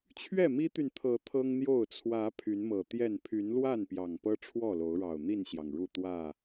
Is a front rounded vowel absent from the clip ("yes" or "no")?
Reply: no